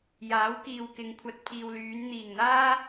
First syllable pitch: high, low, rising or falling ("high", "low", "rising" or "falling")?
rising